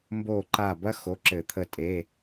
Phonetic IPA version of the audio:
mbo˧˩ǃa˧˩bɐ˥ xo˩˧˩ǁɘ˧˩˧t̪ʰə˧˩ tʼe˩˧˩

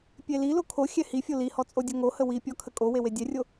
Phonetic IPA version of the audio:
pʲelilo kʰoxʲɛ hifʲo lihɔ t͡sʼodʲoŋohə wipʲɔ kʰəkʼowe wedʲɛrʲo

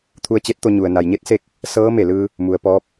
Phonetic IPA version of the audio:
t̪ʰu˧ə̯t͡ɕe˧˥t̚t̪o˧ɲu˩ə̯ na˩jɲe˧˥t̚se˧k̚ | sɤː˧˥ me˧˩lɯː˧ | mu˩ə̯pɔː˧˥p̚

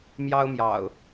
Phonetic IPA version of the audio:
mjɑ˦ʊ̯mjɑ̰˨˩ʊ̯

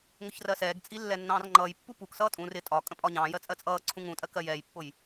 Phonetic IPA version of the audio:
ŋʊçrɜsɛːɡt͡sʼi lːɛnːɑ̃ːrŋ͡ǃʌjpːu puksʌː tʼũr ɪ tʼɒ kʼə̃pʼɒɲɑ̃ːjɜ t͡sʼɜt͡sʼʌːǀʰũ ŋũtʼɜ kɜjɛːjpːʊj

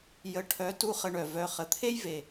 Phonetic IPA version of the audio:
jə˨ʈʰœ˨˦tu˧ χə˧ɳœ˨ vœ˧ χə˨t̪ʰe˦j ve˨

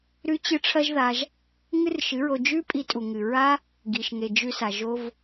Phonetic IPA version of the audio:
ɾʉ˦t͡ɕɨ˦ ʈ͡ʂʰɐ˦ʒða˧ʒ | ŋɨ˦rʃɨ˨˦ɹo˧ d͡ʒʉ˦pʼi˧ tʼu˨ŋɨ˨ɹa˦ | ɡi˨ʃŋe˨ d͡ʒʉ˧sa˨ʒo˧v

